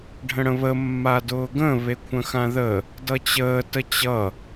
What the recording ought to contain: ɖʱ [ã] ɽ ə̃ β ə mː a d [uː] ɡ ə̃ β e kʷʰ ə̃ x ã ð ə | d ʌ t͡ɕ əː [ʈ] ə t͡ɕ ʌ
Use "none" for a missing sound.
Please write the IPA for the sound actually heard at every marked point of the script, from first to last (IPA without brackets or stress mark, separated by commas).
ə̃, ʊː, t